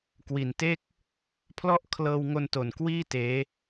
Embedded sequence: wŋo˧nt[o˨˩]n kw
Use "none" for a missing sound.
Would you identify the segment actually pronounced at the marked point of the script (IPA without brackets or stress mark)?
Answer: o˨˩